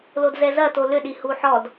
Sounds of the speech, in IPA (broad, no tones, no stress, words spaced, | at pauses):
lodzɛzɐto lʏɗi huħɔd